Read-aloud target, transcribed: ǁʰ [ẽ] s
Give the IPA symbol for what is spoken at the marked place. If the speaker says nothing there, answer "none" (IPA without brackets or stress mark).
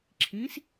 ĩ